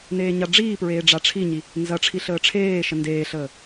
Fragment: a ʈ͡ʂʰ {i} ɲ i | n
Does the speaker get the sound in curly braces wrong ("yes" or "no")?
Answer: no